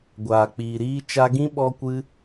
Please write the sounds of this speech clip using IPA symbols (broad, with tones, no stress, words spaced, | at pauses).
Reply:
ɡʷaː˨k͡piː˨ɾiː˧ t͡ʃa˧ɡĩ˦ ɓɔ˦kʷɨ˦